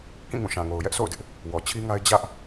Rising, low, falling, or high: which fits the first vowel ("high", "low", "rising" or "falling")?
falling